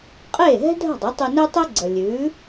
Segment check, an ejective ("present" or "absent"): present